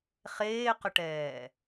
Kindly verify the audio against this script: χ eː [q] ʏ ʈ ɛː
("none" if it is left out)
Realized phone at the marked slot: q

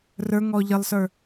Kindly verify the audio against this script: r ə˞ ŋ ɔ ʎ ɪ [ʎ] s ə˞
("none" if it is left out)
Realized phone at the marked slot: lˠ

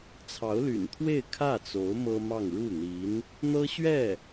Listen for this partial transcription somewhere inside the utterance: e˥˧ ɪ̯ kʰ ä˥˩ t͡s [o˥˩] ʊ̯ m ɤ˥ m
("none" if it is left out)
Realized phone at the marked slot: o˧˥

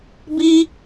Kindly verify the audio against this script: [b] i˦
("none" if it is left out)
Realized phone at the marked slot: b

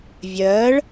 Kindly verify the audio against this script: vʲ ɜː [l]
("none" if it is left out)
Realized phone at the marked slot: ɭ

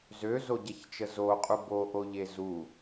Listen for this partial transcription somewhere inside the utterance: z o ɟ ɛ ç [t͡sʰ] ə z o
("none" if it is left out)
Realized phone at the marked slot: t͡ʃ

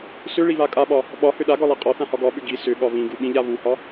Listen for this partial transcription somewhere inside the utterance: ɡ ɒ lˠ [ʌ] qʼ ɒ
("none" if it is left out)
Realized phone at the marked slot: a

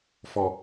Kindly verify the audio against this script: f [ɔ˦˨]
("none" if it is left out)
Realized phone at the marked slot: ɔ˨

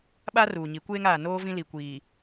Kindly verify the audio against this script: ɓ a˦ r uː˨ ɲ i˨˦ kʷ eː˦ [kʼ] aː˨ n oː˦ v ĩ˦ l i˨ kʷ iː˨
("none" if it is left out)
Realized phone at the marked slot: ŋ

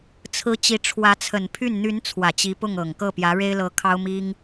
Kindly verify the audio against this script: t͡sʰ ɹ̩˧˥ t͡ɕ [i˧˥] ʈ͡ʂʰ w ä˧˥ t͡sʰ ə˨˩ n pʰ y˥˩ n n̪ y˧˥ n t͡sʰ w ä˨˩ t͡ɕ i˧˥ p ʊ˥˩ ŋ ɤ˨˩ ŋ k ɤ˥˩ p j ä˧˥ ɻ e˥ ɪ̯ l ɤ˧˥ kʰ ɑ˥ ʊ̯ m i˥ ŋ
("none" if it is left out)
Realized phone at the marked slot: i˧˥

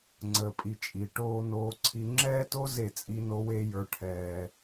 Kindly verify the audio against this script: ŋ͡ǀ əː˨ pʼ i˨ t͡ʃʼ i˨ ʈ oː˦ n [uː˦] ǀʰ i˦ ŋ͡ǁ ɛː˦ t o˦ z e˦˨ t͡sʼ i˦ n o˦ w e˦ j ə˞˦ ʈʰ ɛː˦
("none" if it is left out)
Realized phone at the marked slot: oː˦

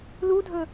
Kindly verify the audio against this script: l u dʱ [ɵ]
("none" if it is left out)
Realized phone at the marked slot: ɵ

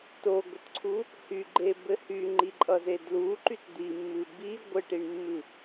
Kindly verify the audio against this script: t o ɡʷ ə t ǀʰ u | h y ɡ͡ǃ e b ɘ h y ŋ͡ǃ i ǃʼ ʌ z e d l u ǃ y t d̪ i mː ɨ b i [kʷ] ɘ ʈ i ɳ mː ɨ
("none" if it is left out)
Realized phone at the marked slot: ɡʷ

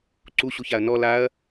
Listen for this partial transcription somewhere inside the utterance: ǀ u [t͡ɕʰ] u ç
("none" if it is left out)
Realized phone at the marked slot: ɕ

